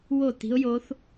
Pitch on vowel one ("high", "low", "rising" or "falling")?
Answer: falling